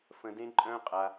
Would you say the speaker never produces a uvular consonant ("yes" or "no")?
no